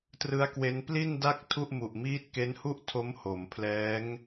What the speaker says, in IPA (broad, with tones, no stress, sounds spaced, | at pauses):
t r ɯ˦˥ a̯ k w e˦˥ n p l i˥˩ n d a˥˩ k̚ tʰ u˥˩ ʔ m u˨˩ ʔ m iː˦˥ t̚ k e˦˥ n h u˥˩ ʔ tʰ o˦˥ m h o˩˦ m pʰ l ɛː˦˥ ŋ